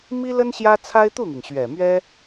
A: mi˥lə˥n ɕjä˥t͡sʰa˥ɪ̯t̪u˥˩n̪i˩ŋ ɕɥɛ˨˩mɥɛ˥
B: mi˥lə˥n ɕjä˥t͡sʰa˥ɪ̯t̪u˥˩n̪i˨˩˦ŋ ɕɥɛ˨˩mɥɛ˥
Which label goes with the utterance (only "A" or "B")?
A